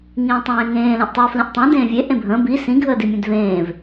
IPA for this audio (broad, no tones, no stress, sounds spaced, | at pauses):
ŋ ĩː tˤ ẽː ŋ ẽː l ẽ ʔ tˤ əː f l ĩ ʔ tˤ ẽ d ẽː vʲ e ʔ ẽ bʱ ə̃ː b i s ĩ ɡʱ əː d i mʲ ẽ d v ẽː v